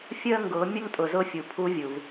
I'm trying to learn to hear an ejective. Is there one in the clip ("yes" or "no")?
yes